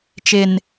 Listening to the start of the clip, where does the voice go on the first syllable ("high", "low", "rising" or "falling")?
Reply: low